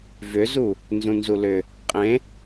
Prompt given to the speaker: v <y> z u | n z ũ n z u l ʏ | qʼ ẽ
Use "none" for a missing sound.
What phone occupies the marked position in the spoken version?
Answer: ʏ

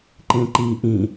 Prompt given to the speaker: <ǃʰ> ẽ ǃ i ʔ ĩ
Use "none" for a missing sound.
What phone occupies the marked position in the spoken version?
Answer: ǃ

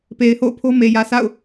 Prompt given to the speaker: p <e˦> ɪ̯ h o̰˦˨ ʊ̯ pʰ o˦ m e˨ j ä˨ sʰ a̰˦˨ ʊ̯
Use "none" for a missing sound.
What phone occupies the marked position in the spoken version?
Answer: e˨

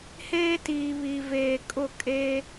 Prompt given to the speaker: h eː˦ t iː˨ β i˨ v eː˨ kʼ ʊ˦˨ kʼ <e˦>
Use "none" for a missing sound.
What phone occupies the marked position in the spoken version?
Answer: e˦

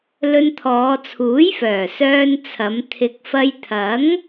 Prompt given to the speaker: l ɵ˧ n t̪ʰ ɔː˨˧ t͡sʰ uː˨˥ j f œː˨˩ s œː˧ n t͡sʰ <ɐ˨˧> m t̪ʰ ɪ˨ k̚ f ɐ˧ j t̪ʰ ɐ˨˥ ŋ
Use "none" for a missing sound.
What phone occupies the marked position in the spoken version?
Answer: ɐ˨˧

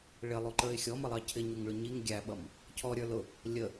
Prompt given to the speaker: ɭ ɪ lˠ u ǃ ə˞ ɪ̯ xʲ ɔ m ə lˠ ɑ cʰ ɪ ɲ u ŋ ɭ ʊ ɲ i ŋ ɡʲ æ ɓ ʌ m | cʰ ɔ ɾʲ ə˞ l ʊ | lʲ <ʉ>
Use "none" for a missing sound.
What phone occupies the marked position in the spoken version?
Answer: ə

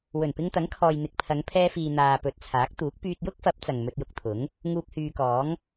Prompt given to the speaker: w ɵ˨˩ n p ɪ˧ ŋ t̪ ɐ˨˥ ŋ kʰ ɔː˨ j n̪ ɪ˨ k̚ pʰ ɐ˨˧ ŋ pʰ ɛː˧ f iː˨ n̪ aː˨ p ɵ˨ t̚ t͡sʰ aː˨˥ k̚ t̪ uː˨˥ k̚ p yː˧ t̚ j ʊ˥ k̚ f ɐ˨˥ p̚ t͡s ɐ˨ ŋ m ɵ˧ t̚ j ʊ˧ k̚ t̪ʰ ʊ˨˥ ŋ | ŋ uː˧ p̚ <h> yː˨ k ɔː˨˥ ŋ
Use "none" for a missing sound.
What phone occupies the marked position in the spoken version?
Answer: h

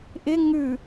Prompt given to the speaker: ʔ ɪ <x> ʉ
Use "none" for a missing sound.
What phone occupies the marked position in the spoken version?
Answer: ŋ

